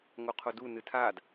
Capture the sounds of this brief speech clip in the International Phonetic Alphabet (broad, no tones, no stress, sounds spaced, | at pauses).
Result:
ŋ o qʰ o d u n ɨ tʰ a d